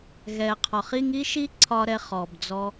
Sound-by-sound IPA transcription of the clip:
ɣɛ˩qʰɒ˩χ i˧ŋ i˥ʃi˥ǀʰɒ˧ ɾɛ˧χɔ˩bd͡zɔ˧

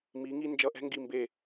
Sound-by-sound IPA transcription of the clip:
mi˩˥ŋi˦ nd͡ʒʌ˧˩ʔɛ̤˦ŋɡi˧˩mbe˧˩

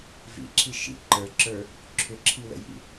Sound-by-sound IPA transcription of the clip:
vḭǁʰi ʃḭ ǃə˞ǁə˞ | ǁʰʏǁʰiwə̰jḭ

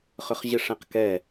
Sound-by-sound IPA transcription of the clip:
χʏχʑɪʂɛ̃qkɛ

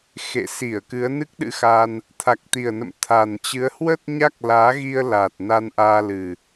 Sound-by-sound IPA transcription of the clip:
xḛ˧˨ si˧˩ə̯ kɨ˨˦ə̯nɨ˦˥k̚ɗɨ̰˧˥xa˧n | t̪ʰa˨˩k̚t̪i˨˩ə̯nə̰˧˨m t̪ʰa˨˩nt͡ɕɨ˨˦ə̯ hwə˦˥t̚ ɲa˦˥k̚laː˨˦ɣi˧ə̯la˨˩t̚ na˧nʔaː˧lɨ˨˩

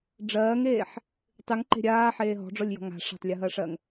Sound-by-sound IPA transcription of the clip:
ɖ͡ʐɜːŋeːħ | tˤɨŋǃe̤ ɾʲaːħeː ɦɔ̤ɖ͡ʐɔlʲjɔ̤ ŋa̤ ʂa̤tˤlʲʊɦɜʂɜŋ

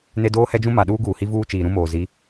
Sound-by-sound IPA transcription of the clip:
ne˦doː˦hɛ˦d͡ʒũ˦ ma˨ ɗuː˦ɡuː˨hi˦ vuː˦ t͡ʃiː˨ɾũ˦moː˨ zi˨˦

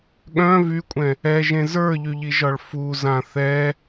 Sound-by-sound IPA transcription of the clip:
ɠœ̃ vykʷʼɛ̃ | ɛʒẽ zə˞ʎyʎiʒɒɭ fuzã θɛ

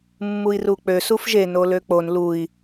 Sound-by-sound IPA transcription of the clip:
mːui̯ruk͡pø sufʒe noløk͡pon lui̯

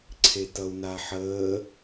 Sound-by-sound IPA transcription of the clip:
ǀʰetʌu̯naħəː

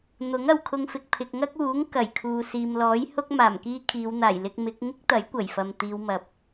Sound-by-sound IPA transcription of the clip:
n̪ʊ˨˥ŋɐ˨wkʰʊ˧ŋfɪ˨k̚ pʰɪ˨k̚ŋɐ˥k̚uː˨˥ŋ kɐ˨˩jkʰuː˨siː˨m lɔː˨˥jhʊ˥k̚ maː˨˩mkiː˥kʰiː˨˧w n̪aː˨˩jlɪ˧k̚mɪ˨˥k̚ ŋɪ˥k̚t̪ɐ˨˥j kʷɐ˨˩jfɐ˨mt̪iː˨˧w mɐ˨˥p̚

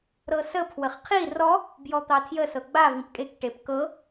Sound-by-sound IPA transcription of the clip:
ɾɤsə pʰwəχqʰi rɔ | bjɔt̪ɑtʰjə sɤɡ͡ba vĩpkʼek ʈepkɤ

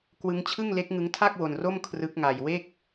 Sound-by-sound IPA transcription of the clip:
kwɯ˦˥ŋt͡ɕʰɯ˥˩ŋ le˦˥k̚ŋɯ˦˥ŋtʰa˥˩k̚ wo˧nro˥˩m kʰrɯ˦˥k̚ŋa˧j we˥˩k̚

